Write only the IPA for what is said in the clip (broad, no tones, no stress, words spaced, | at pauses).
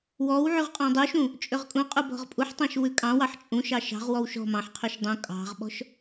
wɔw ʕyʁqʼɔ̃dˤuʃũ | t͡ʃʼøʁkʼũqʼu bɔ̤ʁpʼuħtˤɑ̃ʃ wʉkʼɑ̃wɑħ t͡ʃʼũʃɑ ʃɑ̤ʁwɔw ʃɔ̤ mɑ̃ħqʰyʃ dˤũ kʼɑ̤ʁɓɔ̤ʃ